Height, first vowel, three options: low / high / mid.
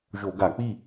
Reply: mid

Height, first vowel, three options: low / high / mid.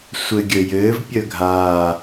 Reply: mid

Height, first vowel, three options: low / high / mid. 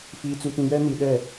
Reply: high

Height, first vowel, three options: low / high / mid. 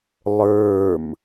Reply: mid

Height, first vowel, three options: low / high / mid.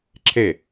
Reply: mid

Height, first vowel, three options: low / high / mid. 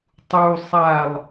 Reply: high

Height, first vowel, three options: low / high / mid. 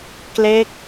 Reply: mid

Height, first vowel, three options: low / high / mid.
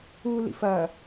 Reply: high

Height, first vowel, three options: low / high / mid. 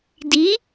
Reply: high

